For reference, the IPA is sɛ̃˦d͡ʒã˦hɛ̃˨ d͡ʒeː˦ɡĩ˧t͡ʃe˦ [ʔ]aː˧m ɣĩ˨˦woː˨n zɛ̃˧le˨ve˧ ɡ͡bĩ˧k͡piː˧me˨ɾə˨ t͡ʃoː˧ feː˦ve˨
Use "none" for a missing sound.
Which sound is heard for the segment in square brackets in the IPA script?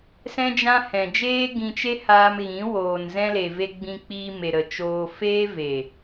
h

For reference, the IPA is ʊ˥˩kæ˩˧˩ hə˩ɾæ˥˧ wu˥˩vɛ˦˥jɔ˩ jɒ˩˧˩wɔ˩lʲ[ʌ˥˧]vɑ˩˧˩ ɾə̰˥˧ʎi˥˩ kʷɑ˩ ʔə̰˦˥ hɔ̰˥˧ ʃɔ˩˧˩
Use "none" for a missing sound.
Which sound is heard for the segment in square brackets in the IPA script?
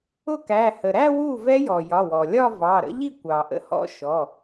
ɒ˥˧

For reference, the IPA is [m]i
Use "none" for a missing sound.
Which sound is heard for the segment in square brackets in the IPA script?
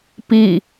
p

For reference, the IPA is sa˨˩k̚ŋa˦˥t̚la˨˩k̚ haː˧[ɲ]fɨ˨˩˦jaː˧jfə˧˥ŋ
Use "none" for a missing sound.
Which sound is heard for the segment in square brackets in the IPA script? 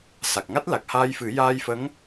j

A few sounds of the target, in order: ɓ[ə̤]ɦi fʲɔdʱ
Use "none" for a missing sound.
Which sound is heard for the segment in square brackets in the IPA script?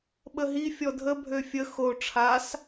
ə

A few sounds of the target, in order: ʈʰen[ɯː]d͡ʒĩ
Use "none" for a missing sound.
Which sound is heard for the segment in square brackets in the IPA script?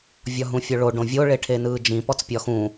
ɯː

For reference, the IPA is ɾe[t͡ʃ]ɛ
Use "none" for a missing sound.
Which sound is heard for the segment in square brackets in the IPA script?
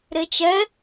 t͡ʃ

